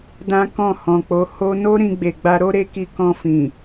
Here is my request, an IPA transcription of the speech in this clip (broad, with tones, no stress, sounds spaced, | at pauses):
d ã˦ k ɔ̃˦˨ h ɔ̃˨ k͡p o˨˦ h o˧ n o˦ ɾ ĩ˧ ɡ͡b e˨ ɡ͡b a˧ ɾ o˦ ɾ e˦ k i˧ k ɔ̃˧ f ĩ˨